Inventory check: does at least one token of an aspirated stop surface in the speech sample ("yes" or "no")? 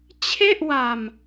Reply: yes